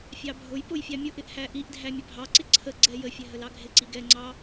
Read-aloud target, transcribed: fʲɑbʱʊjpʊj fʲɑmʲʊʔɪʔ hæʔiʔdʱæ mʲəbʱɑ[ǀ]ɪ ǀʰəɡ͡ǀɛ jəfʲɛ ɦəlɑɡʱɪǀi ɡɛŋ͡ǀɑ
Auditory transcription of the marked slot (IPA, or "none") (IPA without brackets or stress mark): ǀ